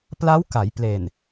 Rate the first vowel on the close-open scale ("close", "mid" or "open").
open